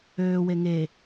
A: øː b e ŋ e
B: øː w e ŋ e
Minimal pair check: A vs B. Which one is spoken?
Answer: B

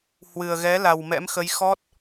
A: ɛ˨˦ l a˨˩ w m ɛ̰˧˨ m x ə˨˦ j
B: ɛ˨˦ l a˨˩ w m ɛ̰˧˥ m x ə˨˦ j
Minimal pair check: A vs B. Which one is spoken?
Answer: B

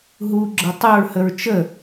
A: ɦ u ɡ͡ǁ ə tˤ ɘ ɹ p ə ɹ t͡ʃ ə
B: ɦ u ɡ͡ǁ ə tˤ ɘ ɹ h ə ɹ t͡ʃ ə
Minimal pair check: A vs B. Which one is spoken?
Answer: B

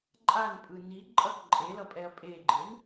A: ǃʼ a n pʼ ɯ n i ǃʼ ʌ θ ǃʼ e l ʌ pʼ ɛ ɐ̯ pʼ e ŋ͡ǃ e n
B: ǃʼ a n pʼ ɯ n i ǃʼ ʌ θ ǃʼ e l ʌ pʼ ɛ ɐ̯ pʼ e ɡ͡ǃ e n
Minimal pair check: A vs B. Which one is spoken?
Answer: B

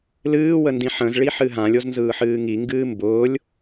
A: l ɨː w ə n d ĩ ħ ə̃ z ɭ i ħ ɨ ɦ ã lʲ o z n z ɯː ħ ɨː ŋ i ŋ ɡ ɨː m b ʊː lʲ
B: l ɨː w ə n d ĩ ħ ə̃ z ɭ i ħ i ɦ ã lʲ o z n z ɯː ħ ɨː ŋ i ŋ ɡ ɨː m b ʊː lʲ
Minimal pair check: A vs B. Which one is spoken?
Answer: A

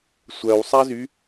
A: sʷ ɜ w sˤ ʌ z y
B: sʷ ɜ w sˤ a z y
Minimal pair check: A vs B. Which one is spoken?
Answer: B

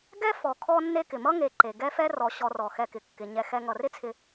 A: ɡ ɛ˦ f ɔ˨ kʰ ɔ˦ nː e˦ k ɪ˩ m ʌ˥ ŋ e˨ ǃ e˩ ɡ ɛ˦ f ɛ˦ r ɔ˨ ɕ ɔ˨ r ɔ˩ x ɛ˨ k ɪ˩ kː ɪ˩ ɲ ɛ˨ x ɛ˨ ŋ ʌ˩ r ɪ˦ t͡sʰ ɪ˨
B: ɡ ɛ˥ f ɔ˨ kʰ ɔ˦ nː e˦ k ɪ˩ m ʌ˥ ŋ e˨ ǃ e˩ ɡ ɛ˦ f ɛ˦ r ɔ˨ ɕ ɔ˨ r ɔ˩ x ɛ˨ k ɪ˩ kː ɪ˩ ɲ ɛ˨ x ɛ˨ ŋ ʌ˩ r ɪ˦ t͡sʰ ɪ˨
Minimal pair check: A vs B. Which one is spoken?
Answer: B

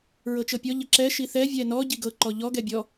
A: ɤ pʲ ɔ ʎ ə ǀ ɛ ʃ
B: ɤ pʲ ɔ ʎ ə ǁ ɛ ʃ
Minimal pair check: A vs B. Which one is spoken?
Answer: B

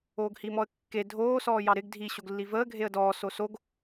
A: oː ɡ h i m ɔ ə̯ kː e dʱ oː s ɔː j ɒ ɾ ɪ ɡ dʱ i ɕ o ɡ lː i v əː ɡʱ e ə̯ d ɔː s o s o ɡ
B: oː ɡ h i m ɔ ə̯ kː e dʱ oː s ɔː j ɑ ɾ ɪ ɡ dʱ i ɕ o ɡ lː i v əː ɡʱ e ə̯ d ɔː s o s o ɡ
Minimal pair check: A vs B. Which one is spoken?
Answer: B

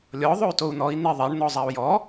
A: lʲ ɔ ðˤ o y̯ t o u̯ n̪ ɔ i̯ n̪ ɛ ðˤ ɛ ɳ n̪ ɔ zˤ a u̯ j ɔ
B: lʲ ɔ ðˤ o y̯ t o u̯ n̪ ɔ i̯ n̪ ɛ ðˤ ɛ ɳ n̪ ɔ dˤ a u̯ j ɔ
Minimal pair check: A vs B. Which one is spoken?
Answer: A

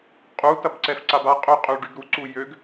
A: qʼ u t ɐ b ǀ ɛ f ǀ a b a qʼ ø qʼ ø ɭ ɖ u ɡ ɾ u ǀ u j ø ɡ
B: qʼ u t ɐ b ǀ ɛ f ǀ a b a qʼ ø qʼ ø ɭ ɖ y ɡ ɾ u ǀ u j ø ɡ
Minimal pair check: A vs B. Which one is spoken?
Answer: B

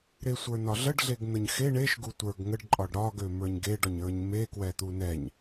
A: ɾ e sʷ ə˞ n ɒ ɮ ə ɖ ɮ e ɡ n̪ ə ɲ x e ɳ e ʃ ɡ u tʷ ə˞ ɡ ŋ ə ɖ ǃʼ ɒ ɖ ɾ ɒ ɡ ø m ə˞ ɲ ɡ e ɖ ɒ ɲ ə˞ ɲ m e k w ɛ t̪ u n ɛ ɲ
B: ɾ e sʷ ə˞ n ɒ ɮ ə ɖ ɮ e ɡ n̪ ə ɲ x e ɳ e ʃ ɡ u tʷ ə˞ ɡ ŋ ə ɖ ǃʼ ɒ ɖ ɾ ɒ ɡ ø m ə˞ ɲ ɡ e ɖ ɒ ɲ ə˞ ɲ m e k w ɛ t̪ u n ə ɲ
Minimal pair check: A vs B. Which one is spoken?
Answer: A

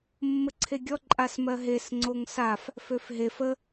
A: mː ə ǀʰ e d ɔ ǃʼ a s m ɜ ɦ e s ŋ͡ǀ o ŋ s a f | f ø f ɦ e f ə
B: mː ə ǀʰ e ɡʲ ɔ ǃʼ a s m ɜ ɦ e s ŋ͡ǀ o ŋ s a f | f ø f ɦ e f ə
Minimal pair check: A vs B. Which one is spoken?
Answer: B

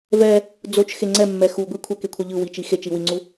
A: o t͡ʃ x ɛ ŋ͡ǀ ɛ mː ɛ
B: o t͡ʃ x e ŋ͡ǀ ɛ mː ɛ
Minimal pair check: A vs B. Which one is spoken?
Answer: B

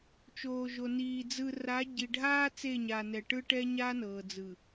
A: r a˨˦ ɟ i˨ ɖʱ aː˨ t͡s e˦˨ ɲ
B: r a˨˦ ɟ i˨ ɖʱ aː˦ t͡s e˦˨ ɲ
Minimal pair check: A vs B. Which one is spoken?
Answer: B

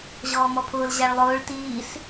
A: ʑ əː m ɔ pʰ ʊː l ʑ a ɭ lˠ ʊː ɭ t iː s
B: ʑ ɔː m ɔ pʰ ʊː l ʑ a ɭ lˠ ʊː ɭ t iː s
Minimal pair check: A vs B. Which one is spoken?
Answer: B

